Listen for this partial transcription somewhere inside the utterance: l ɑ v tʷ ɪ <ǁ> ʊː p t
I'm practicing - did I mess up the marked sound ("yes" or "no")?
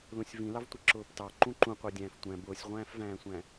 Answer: no